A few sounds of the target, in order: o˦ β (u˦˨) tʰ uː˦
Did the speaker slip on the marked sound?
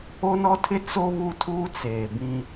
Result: no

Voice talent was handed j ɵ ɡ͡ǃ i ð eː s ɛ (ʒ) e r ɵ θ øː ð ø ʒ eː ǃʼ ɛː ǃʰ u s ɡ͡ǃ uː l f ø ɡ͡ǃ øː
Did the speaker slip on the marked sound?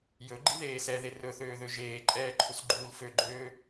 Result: yes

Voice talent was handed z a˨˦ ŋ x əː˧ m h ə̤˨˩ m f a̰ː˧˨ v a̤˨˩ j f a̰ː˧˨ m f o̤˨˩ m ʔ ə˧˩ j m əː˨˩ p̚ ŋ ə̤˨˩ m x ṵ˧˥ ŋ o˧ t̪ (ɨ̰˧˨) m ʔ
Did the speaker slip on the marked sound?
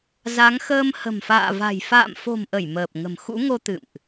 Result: no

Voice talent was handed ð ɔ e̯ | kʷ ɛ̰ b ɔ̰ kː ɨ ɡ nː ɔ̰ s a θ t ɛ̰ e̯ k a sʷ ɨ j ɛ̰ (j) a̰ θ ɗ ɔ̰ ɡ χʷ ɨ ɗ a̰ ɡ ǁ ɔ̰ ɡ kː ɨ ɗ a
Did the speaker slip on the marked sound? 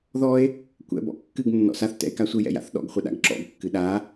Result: no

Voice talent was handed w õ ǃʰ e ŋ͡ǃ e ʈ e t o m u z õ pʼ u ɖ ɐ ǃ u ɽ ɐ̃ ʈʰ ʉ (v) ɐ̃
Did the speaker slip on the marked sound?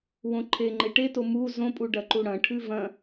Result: no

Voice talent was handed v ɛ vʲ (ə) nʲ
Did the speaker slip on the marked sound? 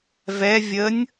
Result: no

